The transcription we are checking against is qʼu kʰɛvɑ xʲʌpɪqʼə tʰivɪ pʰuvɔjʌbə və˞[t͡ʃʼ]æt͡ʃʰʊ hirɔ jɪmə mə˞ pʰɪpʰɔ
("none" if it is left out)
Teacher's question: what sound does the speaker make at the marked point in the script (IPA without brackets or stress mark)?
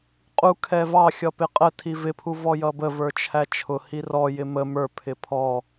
t͡ʃʰ